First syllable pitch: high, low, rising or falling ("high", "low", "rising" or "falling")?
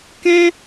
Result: high